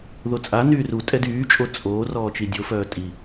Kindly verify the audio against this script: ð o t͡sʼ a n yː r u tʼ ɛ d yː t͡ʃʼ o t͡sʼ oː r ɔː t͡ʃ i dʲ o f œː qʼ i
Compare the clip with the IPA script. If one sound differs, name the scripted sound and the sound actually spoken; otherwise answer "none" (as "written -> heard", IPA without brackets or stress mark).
qʼ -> tʼ